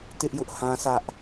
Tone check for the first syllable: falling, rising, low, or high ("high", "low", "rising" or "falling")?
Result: high